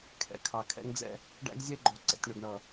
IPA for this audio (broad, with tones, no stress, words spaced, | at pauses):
kʰɛ̰˨kʰɑ˨ kʰɛ̰˦ŋd͡zɛ̰˦ | ɖæ̰˦ɡzʲɛ˦ɡ͡ǃɔ˨ ǀɛ̰˨tʲɳʊ˨ɡɳʌ˨